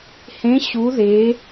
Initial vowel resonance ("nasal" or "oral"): nasal